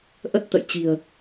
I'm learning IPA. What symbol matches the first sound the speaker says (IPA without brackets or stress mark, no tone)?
ʔ